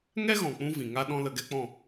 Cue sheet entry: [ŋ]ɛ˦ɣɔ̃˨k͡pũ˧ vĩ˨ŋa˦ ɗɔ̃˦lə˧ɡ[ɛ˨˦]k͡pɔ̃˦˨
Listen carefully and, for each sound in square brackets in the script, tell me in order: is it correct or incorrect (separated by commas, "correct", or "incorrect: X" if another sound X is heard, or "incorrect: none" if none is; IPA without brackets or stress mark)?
correct, incorrect: ɛ˦